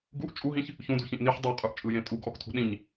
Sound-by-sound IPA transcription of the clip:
ɡuʔ t͡ʃʼuɦĩç | çũdṳçĩʔ niħ dˤə˞qʼə˞ʔt͡ʃʼɯjẽ tʼuɡʔɔktʰṳ ɗĩɲ

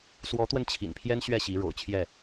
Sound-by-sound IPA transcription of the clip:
swɔ˨˦t̪wə˧n t͡ɕʰḭ˨˩npʰjɛ˦n ɕɥɛ˥˨ɕi˨˦ ɻo̰˨˩ʊ̯t͡ɕʰjɛ˥˨

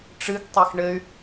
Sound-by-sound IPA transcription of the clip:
ʈ͡ʂɨɡtˤex ɳɘy̯

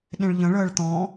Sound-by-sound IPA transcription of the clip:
ɗẽɭʎə̃ɭəːɭ t̪ɔ̃

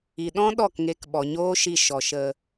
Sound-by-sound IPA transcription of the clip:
i˨ɗɔ̃˦ ɗɔ˦˨kŋeː˧kɓɔ˨ ɲoː˦ʃi˧ʃɔ˨ ʃə˨

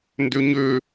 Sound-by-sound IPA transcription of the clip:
ndøɲø

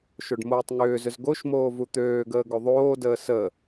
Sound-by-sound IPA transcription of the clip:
ʃoɖmoːtˤŋʏːzʏz ɡoʃmoː vut̪øːɡəː ɡoðˤoːdəː sə

